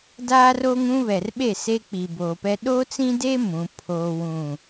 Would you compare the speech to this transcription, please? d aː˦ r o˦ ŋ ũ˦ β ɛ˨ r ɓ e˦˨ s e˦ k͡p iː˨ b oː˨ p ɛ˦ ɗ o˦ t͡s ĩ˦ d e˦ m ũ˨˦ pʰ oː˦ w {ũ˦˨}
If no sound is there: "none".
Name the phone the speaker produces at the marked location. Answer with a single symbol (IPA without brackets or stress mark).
ũ˦˨